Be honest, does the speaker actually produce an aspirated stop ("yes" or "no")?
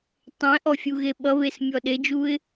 no